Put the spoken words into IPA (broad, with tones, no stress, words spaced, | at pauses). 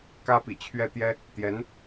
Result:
kä˥pḭ˨˩ t͡ɕʰɥɛ˥˩t̪jɛ˥ | t̪jɛ˧˥n